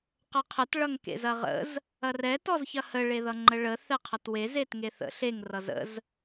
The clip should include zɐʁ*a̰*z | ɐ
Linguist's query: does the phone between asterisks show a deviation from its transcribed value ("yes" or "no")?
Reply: yes